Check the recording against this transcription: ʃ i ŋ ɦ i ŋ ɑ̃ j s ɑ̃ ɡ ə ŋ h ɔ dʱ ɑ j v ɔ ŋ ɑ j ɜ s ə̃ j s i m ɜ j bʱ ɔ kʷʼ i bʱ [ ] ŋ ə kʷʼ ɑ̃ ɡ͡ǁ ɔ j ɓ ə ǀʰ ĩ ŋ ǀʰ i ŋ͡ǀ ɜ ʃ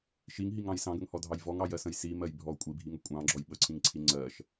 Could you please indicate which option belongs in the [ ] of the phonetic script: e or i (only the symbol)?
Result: i